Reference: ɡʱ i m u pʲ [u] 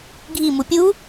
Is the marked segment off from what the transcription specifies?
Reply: no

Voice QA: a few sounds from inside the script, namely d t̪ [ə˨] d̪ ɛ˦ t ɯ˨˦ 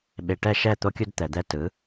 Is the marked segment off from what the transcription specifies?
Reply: yes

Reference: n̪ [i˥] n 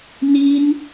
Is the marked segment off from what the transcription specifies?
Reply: no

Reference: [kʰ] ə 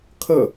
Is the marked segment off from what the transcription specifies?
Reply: no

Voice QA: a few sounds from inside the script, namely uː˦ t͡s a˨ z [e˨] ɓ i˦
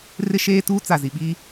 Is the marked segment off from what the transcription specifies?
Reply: yes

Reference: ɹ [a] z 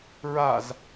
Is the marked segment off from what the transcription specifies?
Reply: no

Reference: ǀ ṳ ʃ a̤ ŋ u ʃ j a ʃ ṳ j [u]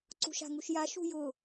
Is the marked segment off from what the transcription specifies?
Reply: yes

